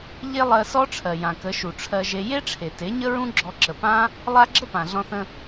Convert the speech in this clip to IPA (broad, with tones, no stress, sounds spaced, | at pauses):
ʎ e˦ lˠ ɜ˧ s ɔ˦ ʈ͡ʂʰ ɜ˨ j ã˨ k ə˨˦ ʃ u˨ ʈ͡ʂʰ ɜ˧ ʒ e˧ j e˦ ʈ͡ʂʰ e˨ t e˨˦ ɲ ə˦ ɹ ũ˦ ɡ͡ǁ ɔ˧ ǁ ə˨ p ã˦ | lˠ a˦ ɡ͡ǁ ə˦ p ã˨ ɮ ɔ̃˧ θ ə̃˧